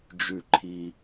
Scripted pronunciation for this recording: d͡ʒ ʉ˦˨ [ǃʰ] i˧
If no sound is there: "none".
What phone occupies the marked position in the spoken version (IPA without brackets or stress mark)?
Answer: ǃʰ